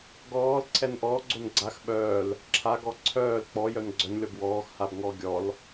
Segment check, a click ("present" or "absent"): present